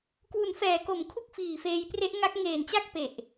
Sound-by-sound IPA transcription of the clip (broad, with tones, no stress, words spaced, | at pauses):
kwu˩˦nfɛː˩˦ko˩˦m kʰu˥˩k̚fiː˨˩feː˧jpre˦˥ʔ ŋa˦˥k̚ ŋeː˨˩nt͡ɕa˥˩k̚ pe˨˩ʔ